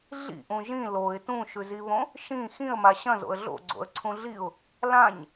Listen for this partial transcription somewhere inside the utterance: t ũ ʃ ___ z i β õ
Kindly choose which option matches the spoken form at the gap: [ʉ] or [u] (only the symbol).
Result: ʉ